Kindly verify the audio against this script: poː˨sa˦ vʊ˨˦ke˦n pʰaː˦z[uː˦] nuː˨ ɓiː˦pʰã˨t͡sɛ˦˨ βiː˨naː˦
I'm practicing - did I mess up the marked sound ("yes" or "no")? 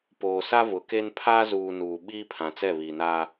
yes